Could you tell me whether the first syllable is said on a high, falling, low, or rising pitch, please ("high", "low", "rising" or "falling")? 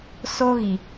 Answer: high